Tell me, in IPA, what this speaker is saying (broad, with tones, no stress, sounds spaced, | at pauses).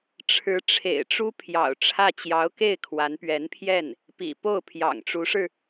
ʈ͡ʂʰ ɻ̩˧˥ ʈ͡ʂʰ ḛ˨˩ ɪ̯ ʈ͡ʂ u˥ pʰ j ɑ̰˨˩ ʊ̯ ʈ͡ʂʰ ä˥˩ t͡ɕ j ɑ˧˥ ʊ̯ k e˥˩ ɪ̯ kʰ w a˧˥ n p ɥ ɛ˧˥ n pʰ j ɛ˥˩ n | p ḭ˨˩ p o˥˩ ʊ̯ pʰ j ɑ̰˨˩ ŋ ʈ͡ʂ u˧˥ ʂ ɻ̩˧